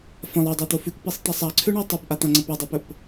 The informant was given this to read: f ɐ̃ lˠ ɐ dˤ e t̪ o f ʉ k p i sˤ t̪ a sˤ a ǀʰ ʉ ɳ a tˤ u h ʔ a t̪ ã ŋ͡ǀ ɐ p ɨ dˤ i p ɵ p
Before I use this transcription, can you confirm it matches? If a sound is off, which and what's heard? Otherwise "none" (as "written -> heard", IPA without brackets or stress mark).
h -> p